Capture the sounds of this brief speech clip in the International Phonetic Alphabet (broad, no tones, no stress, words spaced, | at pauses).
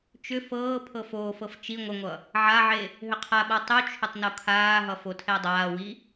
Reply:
t͡ʃʏ fɤː pʰɤfoːfɤf t͡ʃi ŋʷəŋʷʌ | ʕaʕe | ɦʏqʰaɓa tˤʉt͡ʃʰʏtˤ nokʰaːɦʌ fotʰɛdˤaːwi